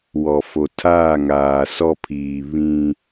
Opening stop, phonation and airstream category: aspirated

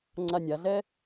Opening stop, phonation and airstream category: click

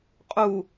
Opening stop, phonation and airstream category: ejective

